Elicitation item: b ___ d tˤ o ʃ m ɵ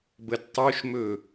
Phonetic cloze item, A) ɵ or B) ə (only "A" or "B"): B